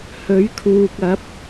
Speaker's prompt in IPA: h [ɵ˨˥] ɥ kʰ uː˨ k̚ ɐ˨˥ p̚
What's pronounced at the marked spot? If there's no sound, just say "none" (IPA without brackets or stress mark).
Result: ɵ˨˥